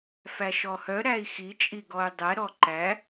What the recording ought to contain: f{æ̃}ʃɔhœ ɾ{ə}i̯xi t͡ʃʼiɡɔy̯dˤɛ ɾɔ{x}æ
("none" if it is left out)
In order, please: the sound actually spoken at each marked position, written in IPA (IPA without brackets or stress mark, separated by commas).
æ, æ, ǃ